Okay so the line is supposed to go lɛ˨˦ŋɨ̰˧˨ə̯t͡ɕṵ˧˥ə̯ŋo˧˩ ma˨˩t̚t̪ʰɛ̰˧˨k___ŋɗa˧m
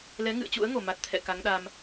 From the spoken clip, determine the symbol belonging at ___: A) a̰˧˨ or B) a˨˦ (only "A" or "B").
B